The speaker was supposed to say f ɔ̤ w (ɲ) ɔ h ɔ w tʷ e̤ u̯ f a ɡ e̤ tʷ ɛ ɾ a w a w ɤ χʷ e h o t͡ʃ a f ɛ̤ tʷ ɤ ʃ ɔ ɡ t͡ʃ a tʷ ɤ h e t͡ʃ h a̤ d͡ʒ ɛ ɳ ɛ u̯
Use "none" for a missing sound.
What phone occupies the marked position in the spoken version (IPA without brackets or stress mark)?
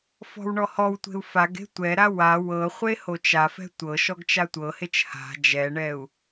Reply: ɳ